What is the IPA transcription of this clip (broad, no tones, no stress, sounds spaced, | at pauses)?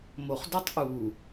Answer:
m o χ d o tˤ ʔ u